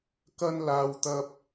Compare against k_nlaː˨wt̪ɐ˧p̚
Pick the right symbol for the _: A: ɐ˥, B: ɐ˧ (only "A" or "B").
B